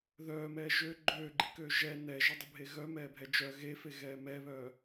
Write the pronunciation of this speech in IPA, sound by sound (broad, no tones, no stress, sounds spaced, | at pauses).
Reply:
ð œː m ɛː ʒ ø ɡ͡ǃ øː ɡ͡ǃ i k øː ʒ ɛ n ɛ ʒ œ dˤ ʊ bʱ e ɣ œ m ɛː bʱ ɛ d͡ʒ œ ɣ e f e ɣ ɛː m ɛ β œ